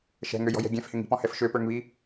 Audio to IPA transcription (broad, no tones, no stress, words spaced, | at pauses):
ʃɛ̤ŋøjɔ̤jɛ̤ ɡʲɛ̃fhɪŋ i̤pɔ̃hɛf ʃøpə˞ŋβi